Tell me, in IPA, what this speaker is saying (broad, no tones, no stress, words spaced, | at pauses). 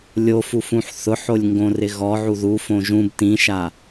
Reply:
lʲofufũħ θʊħolʲŋɡõ rɪɣɔ ʕuðu fõʒũb tĩʃa